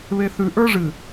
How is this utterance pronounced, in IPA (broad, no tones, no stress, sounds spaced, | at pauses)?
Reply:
β e θ ʉ ʔ ə˞ ʐ ɨ